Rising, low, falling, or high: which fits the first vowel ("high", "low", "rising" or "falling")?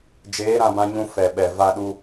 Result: rising